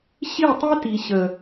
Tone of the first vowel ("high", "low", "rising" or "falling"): falling